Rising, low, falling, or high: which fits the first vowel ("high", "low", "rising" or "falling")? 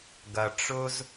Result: low